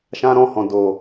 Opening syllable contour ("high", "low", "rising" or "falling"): high